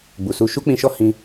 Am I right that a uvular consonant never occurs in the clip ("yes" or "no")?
yes